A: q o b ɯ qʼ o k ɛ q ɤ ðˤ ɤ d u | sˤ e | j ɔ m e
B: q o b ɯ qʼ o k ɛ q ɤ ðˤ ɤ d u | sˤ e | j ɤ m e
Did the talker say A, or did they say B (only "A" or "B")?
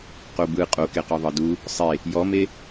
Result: A